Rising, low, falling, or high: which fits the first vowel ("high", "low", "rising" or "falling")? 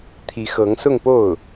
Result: rising